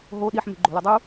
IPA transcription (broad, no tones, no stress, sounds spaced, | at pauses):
ɦ o ɗ i ħ m e̤ ɡ͡ǃ o̤ l u dˤ u